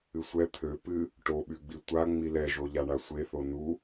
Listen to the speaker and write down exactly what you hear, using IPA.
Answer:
ɨ sʷ ɛ t̪ʰ ø p ɨ | ʈ o ɓ y ɡ͡b i tʷ a ŋ͡m i l ɛ ʒ o ʎ a ɳ a sʷ e θ o n u

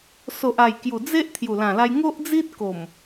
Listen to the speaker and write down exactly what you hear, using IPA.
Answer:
s o˨ ʔ a˨˩ j k j u˨˩ d͡z e˦ ʔ t̪ʰ j u˨˩ l ã˨˩ l a˧ j ŋ o˦ ʔ d͡z i˦ t̚ k o˨˩ m

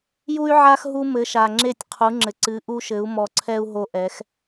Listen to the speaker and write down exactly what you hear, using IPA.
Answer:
j u˦ y̯ ʕ a˦ x ɦ u˦ m ɘ˨˦ ʃ a˨ ŋ͡ǁ e˦˨ tʲ qʰ u˨˦ ŋ͡ǁ ɘ˨ ǀ ɨ˨˦ ʔ u˦ ʃ ɘ˨˦ u̯ m ɔ˨ ǀʰ ɛ˦ u̯ ɦ o˦ ʔ ɛ˨˦ x

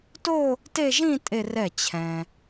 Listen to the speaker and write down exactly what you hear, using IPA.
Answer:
t o˥˧ | t e˥˧ ʒ ĩ˥˧ tʼ e˥˧ r ɛ˥˩ t͡ɕʰ ɛ̃˨

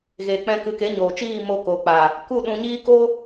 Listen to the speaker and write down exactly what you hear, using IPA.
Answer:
ɣ eː˨ k͡p ɛ̃˧ k ɨ˨˦ k e˨˦ ɲ oː˨ t͡ʃ iː˦˨ m o˧ k oː˨ k͡p aː˨ | k u˦˨ ɗ ũ˧ ɲ iː˦ k o˦

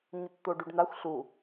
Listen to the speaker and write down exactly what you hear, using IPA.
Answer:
ɲ ə t t̪ o ɖ y ɖ n̪ a xʷ ɬ u

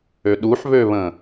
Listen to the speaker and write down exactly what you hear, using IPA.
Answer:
ø ɗ u ħ β ø β ə̃

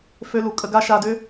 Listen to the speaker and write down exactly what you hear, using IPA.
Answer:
f ø˦ l u˨ kʼ ə˧ ɡ a˦ ʃ a˧ d ʏ˦

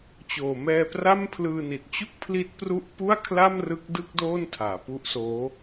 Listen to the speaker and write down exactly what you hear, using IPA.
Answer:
t͡ɕ oː˨˩ m ɛː˧ p r a˥˩ m pʰ l ɯː˧ n i˨˩ t̚ t͡ɕ u˥˩ k̚ pʰ l i˦˥ t̚ p r u˥˩ ʔ p u˥˩ a̯ kʰ l a˥˩ m r ɯ˦˥ k̚ d ɯ˥˩ k̚ d oː˥˩ n tʰ aː˩˦ p u˦˥ ʔ s oː˦˥

